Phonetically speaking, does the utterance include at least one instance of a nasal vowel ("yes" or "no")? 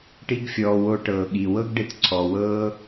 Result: no